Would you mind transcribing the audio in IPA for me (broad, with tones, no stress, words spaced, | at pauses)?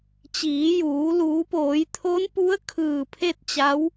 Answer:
t͡ɕiː˩˧juː˩˧ luː˩˧poː˩˧jt̪ʰo˧˥npu˧˥ə̯ kʰɯː˧˩pʰe˥˨t̚t͡ɕa˧˥w